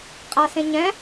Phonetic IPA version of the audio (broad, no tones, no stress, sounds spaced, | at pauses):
qʼ a s ẽ ɲ ɛ̃